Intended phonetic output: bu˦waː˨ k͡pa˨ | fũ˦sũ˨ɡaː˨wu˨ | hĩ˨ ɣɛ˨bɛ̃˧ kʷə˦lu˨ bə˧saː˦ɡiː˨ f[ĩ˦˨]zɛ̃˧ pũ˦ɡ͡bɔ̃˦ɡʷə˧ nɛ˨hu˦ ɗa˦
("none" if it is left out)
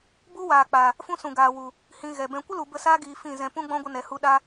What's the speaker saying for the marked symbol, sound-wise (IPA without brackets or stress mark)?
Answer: ĩ˦˨